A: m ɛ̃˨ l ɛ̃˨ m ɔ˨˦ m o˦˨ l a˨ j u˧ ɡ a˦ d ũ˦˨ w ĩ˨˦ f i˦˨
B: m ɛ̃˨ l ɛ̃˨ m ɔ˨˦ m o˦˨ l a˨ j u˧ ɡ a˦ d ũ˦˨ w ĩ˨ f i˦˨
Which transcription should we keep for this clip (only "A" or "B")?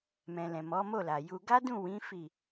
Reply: A